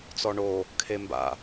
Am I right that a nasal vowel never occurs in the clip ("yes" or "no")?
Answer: yes